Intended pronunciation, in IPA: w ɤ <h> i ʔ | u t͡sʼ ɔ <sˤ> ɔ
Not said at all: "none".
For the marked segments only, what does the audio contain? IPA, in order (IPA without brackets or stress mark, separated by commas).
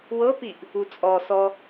p, s